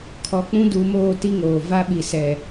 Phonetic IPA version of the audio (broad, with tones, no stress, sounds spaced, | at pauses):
kʰ ɔ˨ k͡p ũ˦ d uː˨ m oː˦˨ t i˦ ŋ oː˨ v a˦ ɓ i˨ s ɛ˨